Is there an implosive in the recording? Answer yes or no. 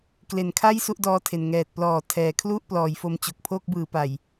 no